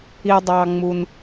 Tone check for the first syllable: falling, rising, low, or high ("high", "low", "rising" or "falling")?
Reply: low